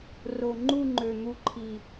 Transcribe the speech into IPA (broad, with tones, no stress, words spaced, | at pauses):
ro˨˩ ŋ͡ǃu˥˧ŋ͡ǃø˨˩n̪u˧ǃʰi˨˩